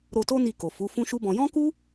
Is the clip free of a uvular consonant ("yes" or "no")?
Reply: yes